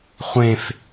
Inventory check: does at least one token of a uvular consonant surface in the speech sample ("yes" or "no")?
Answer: yes